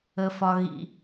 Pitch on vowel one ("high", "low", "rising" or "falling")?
low